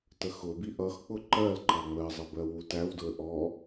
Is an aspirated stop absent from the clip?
yes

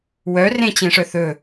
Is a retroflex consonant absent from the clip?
no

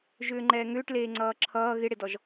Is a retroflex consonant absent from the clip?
no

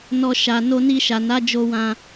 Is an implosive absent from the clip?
yes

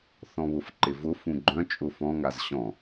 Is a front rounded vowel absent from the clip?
no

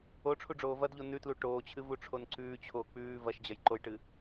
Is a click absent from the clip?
no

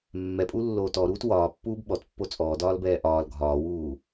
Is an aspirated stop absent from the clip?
yes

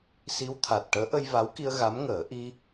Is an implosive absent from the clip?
yes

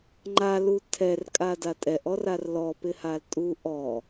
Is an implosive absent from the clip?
yes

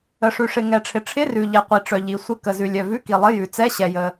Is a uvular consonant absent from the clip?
no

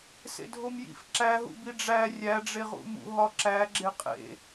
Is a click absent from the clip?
no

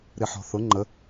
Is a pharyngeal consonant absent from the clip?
no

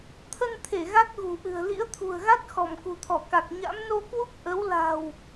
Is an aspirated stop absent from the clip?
no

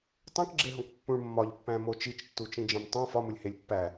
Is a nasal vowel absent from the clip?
no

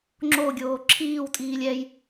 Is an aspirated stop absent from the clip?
no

